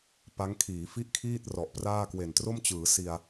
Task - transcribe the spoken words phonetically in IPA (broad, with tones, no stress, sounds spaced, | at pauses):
p a˦˥ ŋ kʰ iː˩˦ f i˥˩ ʔ kʰ iː˥˩ t̚ r ɔ˨˩ ʔ p r aː˥˩ k w e˨˩ n t r o˥˩ m t͡ɕ ɯː˩˦ s i˧ a̯